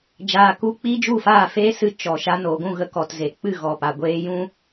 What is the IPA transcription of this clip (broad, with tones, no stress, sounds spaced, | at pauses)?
d͡ʒ aː˧ k u˦ k͡p iː˦ d͡ʒ u˦˨ f aː˦˨ f eː˦ s ɨ˧ t͡ʃ ɔ˨ ʃ a˧ n oː˨ ɡʷ ũ˦˨ ɣ ə˧ k ɔ˨ t z e˨ k͡p ɨ˦˨ ɣ ɔ˨ p a˨ ɡʷ eː˦ j ũ˦